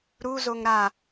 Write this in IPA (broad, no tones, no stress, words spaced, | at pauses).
ɾuzoŋ ɾa